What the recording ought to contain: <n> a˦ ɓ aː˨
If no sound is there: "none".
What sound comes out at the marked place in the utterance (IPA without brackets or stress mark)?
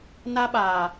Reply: n